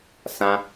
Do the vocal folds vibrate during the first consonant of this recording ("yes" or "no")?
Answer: no